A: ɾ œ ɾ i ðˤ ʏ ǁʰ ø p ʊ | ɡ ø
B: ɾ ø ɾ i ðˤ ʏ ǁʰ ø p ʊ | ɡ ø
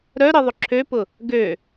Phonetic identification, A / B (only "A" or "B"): A